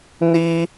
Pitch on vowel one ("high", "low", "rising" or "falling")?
high